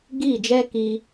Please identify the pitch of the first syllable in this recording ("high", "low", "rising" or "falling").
falling